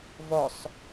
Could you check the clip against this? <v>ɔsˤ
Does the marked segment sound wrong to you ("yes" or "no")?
no